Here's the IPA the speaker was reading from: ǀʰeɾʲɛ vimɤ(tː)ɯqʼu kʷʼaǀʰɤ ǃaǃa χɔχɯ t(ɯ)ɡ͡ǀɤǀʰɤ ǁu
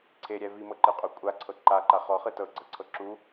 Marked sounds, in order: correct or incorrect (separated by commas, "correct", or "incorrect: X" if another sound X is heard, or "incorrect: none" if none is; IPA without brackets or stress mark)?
incorrect: ǃ, incorrect: ɤ